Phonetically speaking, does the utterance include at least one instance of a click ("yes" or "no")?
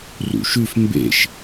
no